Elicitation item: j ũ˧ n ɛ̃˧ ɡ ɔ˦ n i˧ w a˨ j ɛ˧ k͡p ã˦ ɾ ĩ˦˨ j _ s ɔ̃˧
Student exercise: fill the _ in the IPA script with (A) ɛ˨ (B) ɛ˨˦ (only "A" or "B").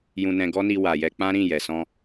A